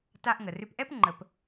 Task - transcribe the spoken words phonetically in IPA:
ta˧ʔŋə˩rʏ˧pʔɛ˥p ŋ͡ǃə˧p

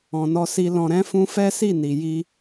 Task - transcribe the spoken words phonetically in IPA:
ɔ̃˧nɔ˦ si˦ lɔ̃˧ ɾɛ̃˦ fũ˦ fɛ˦si˦˨ni˨ ji˧

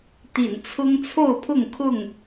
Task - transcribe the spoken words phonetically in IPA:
t̪ḭ˨˩nt͡sʰʊ˦ŋt͡sʰo˥˨ʊ̯pʰʊ˥˨ŋ kʰʊ˥˨ŋ

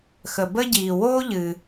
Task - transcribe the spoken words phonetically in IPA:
xə˩bə˥ɟiː˩ woː˥ʎɨ˩

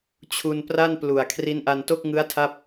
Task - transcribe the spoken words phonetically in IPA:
t͡ɕʰu˧n pra˥˩nplu˨˩a̯ kʰri˦˥nʔa˧nto˥˩k̚ ŋɯ˦˥a̯tʰa˦˥p̚

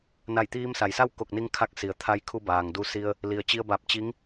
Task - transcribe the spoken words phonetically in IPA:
na˧˩jt̪iː˧msa˩jsa˥˨w ko˧˩k̚ni˧ŋkʰa˧k̚ si˩ə̯t̪ʰa˧j kʰu˧baː˩ŋ du˧si˧ə̯ | li˩ə̯t͡ɕi˧ə̯ ba˧˩p̚ t͡ɕi˧˥ŋ

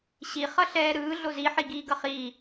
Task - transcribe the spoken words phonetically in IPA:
ɕi χʌɬɛːɾɯː ɮozi ħiɡiːɡʌχiː

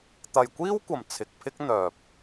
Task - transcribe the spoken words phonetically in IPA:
t̪ɐ˨jkʷiː˥wkʷɐ˨˩m t͡sʰɪ˨k̚pʰɪ˥k̚ n̪œː˨p̚

